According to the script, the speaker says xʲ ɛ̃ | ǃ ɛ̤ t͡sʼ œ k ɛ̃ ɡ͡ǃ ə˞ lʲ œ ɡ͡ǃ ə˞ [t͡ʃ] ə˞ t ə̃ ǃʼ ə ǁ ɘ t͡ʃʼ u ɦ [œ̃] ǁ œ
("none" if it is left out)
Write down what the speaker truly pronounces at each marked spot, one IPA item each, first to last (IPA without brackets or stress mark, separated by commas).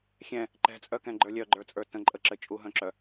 t͡sʼ, œ̃